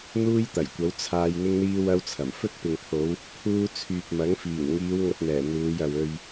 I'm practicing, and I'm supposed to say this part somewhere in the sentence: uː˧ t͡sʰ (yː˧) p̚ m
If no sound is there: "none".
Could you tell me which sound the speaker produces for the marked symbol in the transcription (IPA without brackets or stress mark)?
yː˨